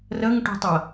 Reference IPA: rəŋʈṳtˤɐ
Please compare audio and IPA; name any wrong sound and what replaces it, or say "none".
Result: none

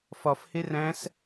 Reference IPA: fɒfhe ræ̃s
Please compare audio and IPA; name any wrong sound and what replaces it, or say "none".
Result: none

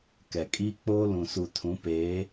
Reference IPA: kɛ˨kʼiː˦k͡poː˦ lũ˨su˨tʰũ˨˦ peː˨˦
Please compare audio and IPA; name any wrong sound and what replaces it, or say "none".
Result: none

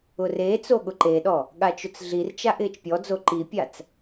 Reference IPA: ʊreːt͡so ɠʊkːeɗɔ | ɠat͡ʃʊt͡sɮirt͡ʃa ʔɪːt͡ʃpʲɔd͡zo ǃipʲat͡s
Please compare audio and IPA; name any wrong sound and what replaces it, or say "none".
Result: kː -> ǃ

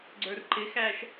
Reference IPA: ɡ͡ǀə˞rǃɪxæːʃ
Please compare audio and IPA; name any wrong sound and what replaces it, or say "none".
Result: none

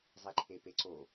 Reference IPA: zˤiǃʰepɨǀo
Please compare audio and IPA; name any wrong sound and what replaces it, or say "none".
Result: ɨ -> e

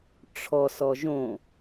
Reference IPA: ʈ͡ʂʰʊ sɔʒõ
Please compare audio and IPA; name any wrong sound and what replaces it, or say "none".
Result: ʊ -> ɔ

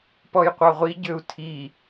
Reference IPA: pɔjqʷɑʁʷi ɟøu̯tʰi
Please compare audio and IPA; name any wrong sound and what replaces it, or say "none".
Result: none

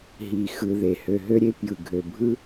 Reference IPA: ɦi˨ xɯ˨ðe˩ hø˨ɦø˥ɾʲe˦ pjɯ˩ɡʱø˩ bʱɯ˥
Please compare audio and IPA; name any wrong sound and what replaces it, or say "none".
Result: none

